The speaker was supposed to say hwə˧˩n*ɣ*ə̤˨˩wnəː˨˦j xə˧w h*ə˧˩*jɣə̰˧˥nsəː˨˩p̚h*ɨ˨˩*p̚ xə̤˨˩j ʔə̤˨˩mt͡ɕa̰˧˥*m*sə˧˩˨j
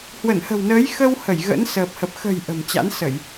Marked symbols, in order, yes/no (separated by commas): no, yes, no, no